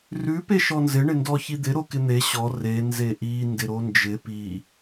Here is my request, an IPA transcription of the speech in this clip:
r ʉ p e ʃ ɔ n z ɪ ɳ ɪ n d ɔ ç i d̪ ɪ ɾ o k ɪ n̪ e ɕ ɔ r e n z e ʔ i n d ɪ ɾ o n d͡ʒ ɪ p i

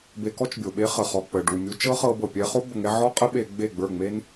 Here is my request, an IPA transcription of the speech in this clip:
b e˧ k ɔ˦ t͡ʃ bʲ o˨ ɓ e˦ χ ə˨ χ ɔ˨ k͡p ə˨ ɖ u˨ mʲ u˧ t͡ʃ ɤ˦ χ ɤ˧ b ɤ˨ pʲ ɛ˧ χ o˦ b ə˨ ŋ ɛ˧ ʕ ɔ˦ qʼ ə˦ ɓ e˧ ɡ͡b e˦˨ ɡ͡b ə˞˦˨ ŋ͡m e˦ n

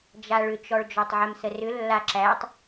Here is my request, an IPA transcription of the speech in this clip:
d͡ʒ a ɭ ʏ t͡ʃ ɔ ɭ d͡ʒ ɔ tˤ ʕ ɛ m s ə r ʏ lː a ǁ æ tˤ

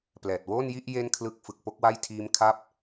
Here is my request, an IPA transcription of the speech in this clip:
p l ɛː˨˩ t̚ w oː˥˩ n j i˥˩ ʔ j e˥˩ n kʰ l ɯ˦˥ k̚ f ɯ˨˩ k̚ p o˥˩ k̚ w a˥˩ j tʰ iː˦˥ m kʰ a˦˥ p̚

